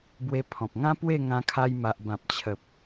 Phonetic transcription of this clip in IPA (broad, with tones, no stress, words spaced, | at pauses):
bwe˧pʰɔ̃˨p̚ŋã˦ pwe˥˧ŋã˧kʰa˧j ma˨ʔbã˨p̚t͡ɕʰə˨p̚